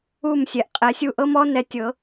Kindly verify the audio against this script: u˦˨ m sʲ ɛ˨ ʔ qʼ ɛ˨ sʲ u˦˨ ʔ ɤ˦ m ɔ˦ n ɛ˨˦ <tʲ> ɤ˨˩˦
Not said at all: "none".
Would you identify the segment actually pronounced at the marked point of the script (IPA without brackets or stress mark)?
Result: tʲ